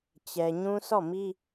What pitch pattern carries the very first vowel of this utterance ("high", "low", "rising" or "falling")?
low